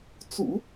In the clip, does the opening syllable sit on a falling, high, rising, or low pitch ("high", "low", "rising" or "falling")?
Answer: low